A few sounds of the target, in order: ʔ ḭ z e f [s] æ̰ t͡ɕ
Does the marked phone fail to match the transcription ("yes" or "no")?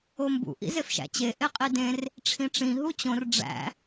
yes